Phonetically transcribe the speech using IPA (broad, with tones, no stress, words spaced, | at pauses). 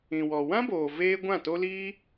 ĩ˨wɔ˨ wã˦boː˨ veː˧ ɡʷã˦˨to˦liː˦